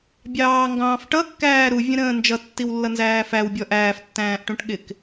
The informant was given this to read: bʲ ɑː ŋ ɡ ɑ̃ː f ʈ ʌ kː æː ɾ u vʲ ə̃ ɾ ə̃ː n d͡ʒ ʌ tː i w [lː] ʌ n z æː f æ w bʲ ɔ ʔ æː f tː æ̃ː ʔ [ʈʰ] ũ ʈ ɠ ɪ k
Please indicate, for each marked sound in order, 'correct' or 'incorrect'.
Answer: correct, incorrect

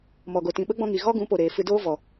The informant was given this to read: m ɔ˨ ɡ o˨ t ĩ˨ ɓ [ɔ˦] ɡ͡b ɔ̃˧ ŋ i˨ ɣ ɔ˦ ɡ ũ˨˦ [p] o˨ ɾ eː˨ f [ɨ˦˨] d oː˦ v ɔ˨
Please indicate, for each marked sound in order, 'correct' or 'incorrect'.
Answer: incorrect, correct, incorrect

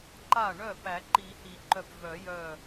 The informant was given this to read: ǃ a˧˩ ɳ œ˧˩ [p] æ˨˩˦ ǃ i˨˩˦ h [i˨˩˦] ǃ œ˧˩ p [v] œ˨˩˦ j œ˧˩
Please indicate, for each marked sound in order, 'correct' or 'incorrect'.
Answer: correct, correct, correct

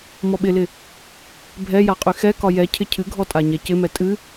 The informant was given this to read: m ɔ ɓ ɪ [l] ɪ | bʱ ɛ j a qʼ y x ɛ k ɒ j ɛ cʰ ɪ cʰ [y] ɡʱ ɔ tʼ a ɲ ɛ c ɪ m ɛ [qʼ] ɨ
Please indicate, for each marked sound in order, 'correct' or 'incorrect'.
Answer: correct, incorrect, incorrect

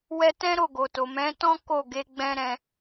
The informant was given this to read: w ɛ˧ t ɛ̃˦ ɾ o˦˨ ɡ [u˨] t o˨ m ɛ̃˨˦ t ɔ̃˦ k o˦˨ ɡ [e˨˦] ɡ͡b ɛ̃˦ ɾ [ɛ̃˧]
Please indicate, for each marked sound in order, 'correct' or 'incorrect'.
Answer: incorrect, correct, correct

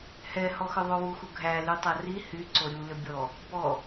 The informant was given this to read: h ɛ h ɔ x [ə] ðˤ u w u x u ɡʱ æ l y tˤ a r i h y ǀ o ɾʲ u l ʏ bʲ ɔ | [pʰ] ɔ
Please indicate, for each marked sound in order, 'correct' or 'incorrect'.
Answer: incorrect, incorrect

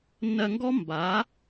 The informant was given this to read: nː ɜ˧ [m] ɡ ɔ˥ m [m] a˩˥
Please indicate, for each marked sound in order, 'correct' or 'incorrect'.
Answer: incorrect, incorrect

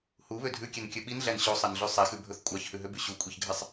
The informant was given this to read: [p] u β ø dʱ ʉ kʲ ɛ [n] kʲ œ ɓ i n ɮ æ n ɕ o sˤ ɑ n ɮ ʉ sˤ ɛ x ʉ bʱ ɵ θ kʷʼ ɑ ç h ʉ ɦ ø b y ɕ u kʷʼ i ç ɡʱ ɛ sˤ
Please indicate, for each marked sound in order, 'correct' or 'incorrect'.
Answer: incorrect, correct

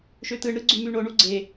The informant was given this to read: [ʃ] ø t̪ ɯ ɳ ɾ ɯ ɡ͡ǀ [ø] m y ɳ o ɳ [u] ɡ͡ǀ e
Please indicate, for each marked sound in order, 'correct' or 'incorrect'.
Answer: correct, incorrect, correct

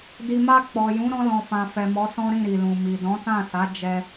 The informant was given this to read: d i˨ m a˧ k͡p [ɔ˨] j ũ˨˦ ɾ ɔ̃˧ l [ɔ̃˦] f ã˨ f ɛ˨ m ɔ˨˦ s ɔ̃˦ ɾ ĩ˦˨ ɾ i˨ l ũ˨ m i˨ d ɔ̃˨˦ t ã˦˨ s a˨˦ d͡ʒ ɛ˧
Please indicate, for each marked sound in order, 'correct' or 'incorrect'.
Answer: correct, incorrect

